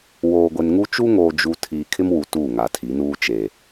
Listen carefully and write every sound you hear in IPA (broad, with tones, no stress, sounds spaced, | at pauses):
w oː˨ ɡʷ e˨ n ŋ u˦ t͡ʃ u˦ ŋ oː˨ d͡ʒ u˨ tʰ iː˨ kʰ ɪ˦ m w u˨ t uː˦˨ ŋ a˨ tʰ i˨˦ n uː˦ t͡ʃ e˨